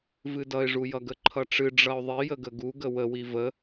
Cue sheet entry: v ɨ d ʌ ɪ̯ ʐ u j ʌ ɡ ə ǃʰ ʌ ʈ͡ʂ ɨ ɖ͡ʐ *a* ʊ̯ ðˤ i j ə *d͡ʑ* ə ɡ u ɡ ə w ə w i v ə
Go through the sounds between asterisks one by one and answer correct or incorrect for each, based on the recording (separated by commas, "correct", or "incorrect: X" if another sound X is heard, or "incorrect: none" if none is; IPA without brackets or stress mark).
incorrect: ʌ, incorrect: ɡ